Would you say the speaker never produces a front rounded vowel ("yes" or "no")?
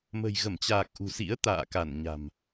yes